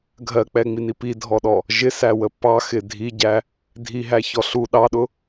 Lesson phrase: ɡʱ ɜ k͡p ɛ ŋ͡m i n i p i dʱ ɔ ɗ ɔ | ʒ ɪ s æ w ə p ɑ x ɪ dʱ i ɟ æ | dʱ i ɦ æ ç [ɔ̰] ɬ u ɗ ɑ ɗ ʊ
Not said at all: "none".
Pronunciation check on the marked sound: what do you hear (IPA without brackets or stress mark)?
ɔ